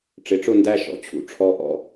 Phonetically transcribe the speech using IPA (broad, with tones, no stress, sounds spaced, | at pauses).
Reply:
ʈ͡ʂ ɪ˨˥ ʈ͡ʂ ʊ˥˧ n d æ˥˧ ʃ ɔ̰˨˥ t͡ɕʰ ṵ˨˥ ʈ͡ʂʰ ɔ˥˧ ʔ ɔ̰˥˧